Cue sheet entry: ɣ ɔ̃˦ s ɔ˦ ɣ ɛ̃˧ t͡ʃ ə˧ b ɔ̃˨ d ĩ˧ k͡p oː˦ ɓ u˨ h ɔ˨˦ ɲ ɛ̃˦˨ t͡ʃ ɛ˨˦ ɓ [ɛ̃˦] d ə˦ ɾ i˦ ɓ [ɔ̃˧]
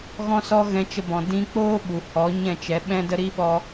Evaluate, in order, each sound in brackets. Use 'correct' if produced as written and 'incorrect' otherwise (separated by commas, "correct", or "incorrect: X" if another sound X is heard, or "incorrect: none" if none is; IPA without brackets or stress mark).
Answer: correct, incorrect: ɔ˧